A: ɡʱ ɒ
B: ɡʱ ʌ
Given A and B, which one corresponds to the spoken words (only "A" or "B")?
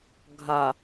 A